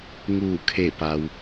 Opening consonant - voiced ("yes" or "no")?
yes